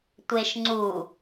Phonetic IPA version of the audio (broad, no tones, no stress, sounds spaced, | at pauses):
tʷ e ʃ ŋ͡ǀ u